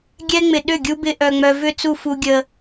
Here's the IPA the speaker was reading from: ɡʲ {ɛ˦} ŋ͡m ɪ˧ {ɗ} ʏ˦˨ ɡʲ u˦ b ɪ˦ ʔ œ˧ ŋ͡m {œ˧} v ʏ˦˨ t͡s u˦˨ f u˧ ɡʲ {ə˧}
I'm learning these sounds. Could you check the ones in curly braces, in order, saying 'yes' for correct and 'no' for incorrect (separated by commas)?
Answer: yes, yes, yes, yes